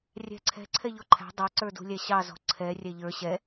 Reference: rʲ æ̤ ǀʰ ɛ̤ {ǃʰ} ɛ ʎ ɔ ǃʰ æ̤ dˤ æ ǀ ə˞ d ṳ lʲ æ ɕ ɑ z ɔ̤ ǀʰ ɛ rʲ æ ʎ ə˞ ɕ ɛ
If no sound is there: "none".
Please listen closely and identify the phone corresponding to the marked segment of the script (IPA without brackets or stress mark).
ǀʰ